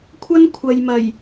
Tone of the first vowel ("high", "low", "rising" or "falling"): high